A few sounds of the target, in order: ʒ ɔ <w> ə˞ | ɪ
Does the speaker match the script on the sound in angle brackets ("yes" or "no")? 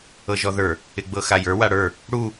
no